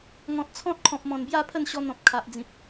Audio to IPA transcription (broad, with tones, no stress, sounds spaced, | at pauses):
ŋ ɔ̃˨ t̚ t͡sʰ ɔ̃˦ t̚ kʰ ɔ̃˨ p̚ m ɔ̃˨˩ n b j a˥˧ pʰ ə˥˧ n ɕ ɔ˧ n̪ ɔ̃˨ p̚ kʰ a˨ ʔ d͡z ĩ˨ p̚